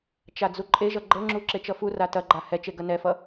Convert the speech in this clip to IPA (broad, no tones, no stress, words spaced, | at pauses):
t͡ʃad͡zuǃʼeʒʌ ɡ͡ǃɤŋ͡ǁu ǁet͡ʃʌfura tɐɡ͡ǃa hɛt͡ʃe ɡɐnɛfʌ